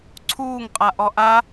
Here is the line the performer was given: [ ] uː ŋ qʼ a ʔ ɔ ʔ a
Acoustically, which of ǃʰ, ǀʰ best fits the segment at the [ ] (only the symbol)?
ǀʰ